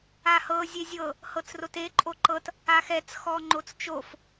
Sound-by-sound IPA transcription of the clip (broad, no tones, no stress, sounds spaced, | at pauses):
a h ɤ zʲ e zʲ ɤ | h ɤ t͡s r o t e ǃʼ o ǃ ɤ t | a x ɛ t͡s x ɔ ŋ͡ǃ o t͡s t͡ʃ o f